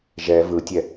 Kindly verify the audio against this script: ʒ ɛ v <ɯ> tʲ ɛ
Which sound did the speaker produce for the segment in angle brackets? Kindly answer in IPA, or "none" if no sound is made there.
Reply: ɯ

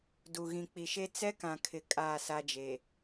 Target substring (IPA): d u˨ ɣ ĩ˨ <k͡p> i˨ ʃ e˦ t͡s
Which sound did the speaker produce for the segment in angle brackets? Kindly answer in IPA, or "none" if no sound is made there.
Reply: k͡p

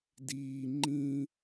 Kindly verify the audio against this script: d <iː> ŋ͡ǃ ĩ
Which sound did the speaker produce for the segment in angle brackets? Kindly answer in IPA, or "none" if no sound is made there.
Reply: iː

